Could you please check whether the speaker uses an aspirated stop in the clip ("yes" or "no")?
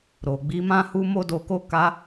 no